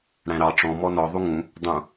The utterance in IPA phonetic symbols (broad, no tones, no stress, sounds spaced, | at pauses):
ɽ æ̃ ɾ ɑ ʈ͡ʂ ɔ̃ m ɔ n ɔ ðˤ u ŋ ũ | dˤ ũ